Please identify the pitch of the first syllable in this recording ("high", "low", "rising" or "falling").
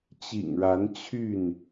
low